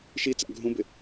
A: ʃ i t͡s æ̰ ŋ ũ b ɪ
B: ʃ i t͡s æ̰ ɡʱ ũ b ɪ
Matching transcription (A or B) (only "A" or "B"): B